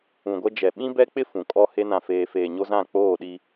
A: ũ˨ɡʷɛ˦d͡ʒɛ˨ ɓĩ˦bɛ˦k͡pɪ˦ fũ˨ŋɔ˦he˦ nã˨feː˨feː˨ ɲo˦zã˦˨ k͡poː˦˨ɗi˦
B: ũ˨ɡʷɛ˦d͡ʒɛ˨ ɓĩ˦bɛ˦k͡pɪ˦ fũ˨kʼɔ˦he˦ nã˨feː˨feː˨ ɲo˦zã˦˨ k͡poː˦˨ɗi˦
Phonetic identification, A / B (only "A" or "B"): B